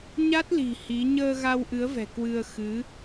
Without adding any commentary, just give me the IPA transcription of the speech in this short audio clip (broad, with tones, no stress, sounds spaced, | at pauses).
ɲ a˦˥ t̚ l i̤˨˩ h i˨˦ ɲ əː˧ ɣ a˧ w ʔ ɨ˨˦ ə̯ v ɛ̤˨˩ k w ɨ˧ ə̯ x ɨ˨˦